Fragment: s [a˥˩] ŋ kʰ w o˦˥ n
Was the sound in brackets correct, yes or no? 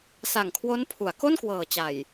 no